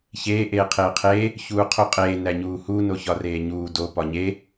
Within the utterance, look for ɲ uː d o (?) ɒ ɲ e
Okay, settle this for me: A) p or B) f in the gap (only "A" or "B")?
A